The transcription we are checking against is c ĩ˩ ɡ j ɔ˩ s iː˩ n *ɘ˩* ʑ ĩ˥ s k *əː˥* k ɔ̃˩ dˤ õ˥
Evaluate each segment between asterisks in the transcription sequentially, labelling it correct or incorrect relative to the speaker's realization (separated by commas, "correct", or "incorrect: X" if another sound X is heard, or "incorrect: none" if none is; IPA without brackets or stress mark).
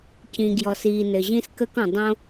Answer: correct, correct